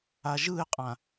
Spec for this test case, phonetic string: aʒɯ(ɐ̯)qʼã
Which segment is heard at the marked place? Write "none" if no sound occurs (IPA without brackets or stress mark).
e̯